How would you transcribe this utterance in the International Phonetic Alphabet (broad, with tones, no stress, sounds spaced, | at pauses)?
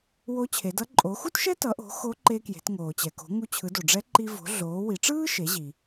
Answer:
w o˧˥ t͡ɕʰ e˩˧ d ʌ˧˥ ǃʼ o˩˧ x u˥ t ʃ ɛ˥ t ʌ˩˧ ʔ o̤˩˧ x o˧˥ ǃ e˧ k j e̤˩˧ t ŋ oː˩ t͡ɕ ɛ˩ k o̤˩˧ ŋ u˧ t͡ɕʰ ɯ˩˧ d o˩ ɖ͡ʐ ɛ˧˥ ǃ i˧ v o̤˩˧ ɮ oː˩˧ w i˩˧ ʈ͡ʂ ɯː˥ ʃ e˩˧ ʑ i˩